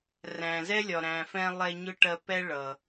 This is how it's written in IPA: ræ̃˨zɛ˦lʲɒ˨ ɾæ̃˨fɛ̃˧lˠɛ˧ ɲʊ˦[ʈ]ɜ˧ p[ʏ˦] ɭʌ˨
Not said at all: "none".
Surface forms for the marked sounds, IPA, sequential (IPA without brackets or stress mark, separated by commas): ʈ, ɛ˦